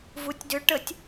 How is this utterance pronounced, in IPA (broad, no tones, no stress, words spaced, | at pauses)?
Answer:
vutʲdʏ ʈətʲ